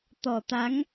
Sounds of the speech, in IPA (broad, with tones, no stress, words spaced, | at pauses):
t̪ɔ˨˩t̪a˨˦ŋ